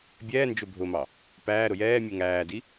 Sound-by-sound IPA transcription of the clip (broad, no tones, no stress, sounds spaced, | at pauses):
bʲ ɛː n d͡ʒ ʊ bʱ ʊ m ɑ | p æː ɾ ʊ j ɛː mʲ u ŋ æː d i